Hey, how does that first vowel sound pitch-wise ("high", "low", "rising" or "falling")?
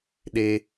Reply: high